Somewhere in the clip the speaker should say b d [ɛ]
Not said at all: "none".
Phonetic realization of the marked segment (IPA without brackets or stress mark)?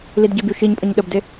e